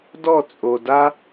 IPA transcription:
d ɔ˦˨ t͡sʼ o˨ d a˦

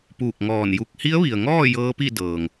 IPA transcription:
p uː˧˩ k̚ ŋ ɔː˧˩ n j u˧ k̚ h i˧˥ ə̯ ʋ i˩ ə̯ ŋ ɔː˥˨ j ɤː˧˥ p i˥˨ d ɤː˩ ŋ

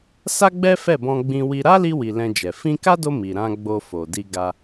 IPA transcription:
s a˦ ɡ͡b ɛ˦ f ɛ˦˨ b ɔ̃˧ ɡ͡b ĩ˧ w i˧ ɾ a˦ l i˧ w i˨ l ɛ̃˧ d͡ʒ ɛ˨ f ĩ˧ k a˦ d o˧ m i˨ ɾ ã˧ ɡ͡b o˧ f o˨ d i˧ ɡ a˧

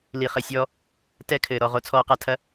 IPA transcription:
l i˨ χ ɘ˨ sʲ ɔː˦ | t ɛ˦ kʰ ɘː˨ ɾ ɔ˨ ʁ o˦ t͡sʰ ɔː˦ q a˦ tʰ ɐ˦

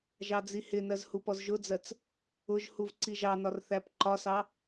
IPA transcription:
ʒ ɑ d͡z i h ɪ n ɜ z h u p ɔ z ʒ ʊ d͡z ɜ t͡s | ʊ ʒ h u v ǀ i ʒ ɑ n ɒ r θ æ p ǃ ɒ s ɑ

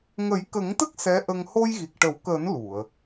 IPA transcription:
ŋ ə˨˩˦ j k ə˨˩˦ ŋ t̪ ə˦˥ k̚ s ɛ˧˥ ʔ ə˧ ŋ h o˧ j ɣ i˨˩ k̚ ʈ ə˨˩˦ w k əː˨˩˦ n l u˨˩˨ ə̯

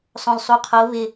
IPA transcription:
sˤ õ l sˤ u qʰ o β ɪ

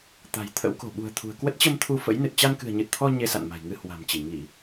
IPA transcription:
t̪ a̤˨˩ j t̪ʰ ə̰˧˥ w k o̤˨˩ ɓ ṳ˨˩ ə̯ t̪ʰ ṳ˨˩ ə̯ k w ə˦˥ t̚ t͡ɕ ə˧ m t̪ʰ u˧ f ə̰˧˥ j n ɨ˨˩ t̚ t͡ɕ a˧ n k ɨ̤˨˩ ə̯ ɲ ɨ˨˩ t̚ t̪ʰ ɔ˧ ɲ e˧ s a̰˧˨ n m a̤˨˩ j ŋ ɨ˧ h w a̤˨˩ m t͡ɕ i˧˩ ŋ i˧˩˨

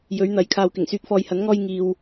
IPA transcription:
j ɵ˨˥ ɥ n̪ ɐ˨˥ j kʰ aː˨ w k ɪ˨˩ ŋ s yː˨˥ k̚ f ɔː˨ j h ɐ˨˥ n ŋ ɔː˧ j ŋ iː˧ w

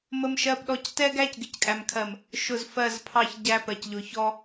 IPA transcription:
m ə˦ m ʃ ɜ˦ p ɗ ɔ˦ c t ɛ˦ ɡ æ˦ c ɡ ɪ˨ c kʼ æ˨ m kʰ ɜ˨ m | ʃ ʊ˨ z f ɜ˦˨ z pʰ ɑ˦ ç ɟ æ˦ p ɜ˨ c ʎ ʊ˨ ç ɔ˦

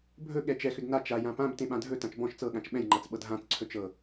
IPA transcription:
bʱ ɵ ɠ ɛ t͡ʃ ɛ x ʏ d n a t͡ʃ a j ã p ã b t ẽ ɓ ã dʱ ɵ t ã t͡ʃ b ɔ̃ ʃ t͡s ɤ ɠ ã t͡ʃ ɓ ɛ̃ j ŋ͡ǃ a t͡s ɓ ɤ d ɦ ã t͡s ǀʰ ɵ t͡ʃ ɤ

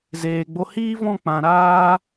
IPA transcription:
z eː˨ ɡ͡b o˧ h iː˦ v ɔ̃˦˨ k͡p ã˨ ɾ aː˦

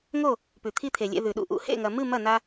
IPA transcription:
ŋ o˦˨ | p ʉ˨ t̪ʰ i˦ t̪ʰ e˨ lʲ ḛ˧ ð ʉ˨ ɗ ṵ˧ ʔ ṵ˨˦ h ḛ˦˨ ŋ ɐ˨ m ɨ˦˨ m ɐ˦˨ n a˧

